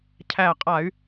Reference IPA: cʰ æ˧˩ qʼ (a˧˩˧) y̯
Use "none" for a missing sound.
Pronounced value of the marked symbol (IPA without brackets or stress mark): a˧˩˧